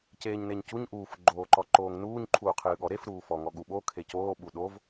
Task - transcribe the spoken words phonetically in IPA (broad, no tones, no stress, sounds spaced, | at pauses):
c eː ɲ n e ɲ c u ɲ ʔ uː f ɡ͡ǃ oː ǃ ɔ ǃ oː ŋ n uː ɲ ǃʰ uː qʰ ɨː ɠ ɔ ɾ e f ɾ uː f ɔ ŋ ɔ ɠ u ɓ o kʰ e c oː ɓ u ɗ o v